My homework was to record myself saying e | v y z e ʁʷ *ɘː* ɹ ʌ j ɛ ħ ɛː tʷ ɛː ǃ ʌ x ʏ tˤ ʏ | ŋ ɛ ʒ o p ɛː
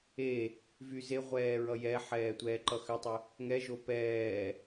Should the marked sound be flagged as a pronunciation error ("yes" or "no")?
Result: yes